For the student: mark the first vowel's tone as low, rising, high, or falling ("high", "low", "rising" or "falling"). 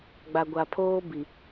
low